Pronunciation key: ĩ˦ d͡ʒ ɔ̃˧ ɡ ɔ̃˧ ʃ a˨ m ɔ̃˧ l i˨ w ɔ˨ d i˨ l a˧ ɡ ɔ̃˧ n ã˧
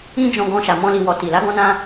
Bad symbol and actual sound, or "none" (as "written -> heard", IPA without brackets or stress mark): d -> t